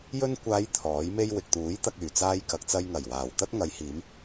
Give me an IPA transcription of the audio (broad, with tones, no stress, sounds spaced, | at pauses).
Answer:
j ɵ˧ n kʷ aː˨˧ j t̪ʰ ɔː˨˥ j m e˥ j w ɪ˨ k̚ t̪ uː˨˥ j t̪ ɐ˧ k̚ yː˨˩ t͡s aː˧ j k ɐ˨ k̚ t͡s ɐ˧ j ŋ ɐ˨˩ j w aː˨˩ w t̪ ɐ˥ t̚ ŋ ɐ˨˧ j h iː˨˧ m